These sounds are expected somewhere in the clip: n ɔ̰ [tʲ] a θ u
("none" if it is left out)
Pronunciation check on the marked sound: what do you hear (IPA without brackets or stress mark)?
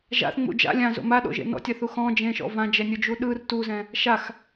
tʲ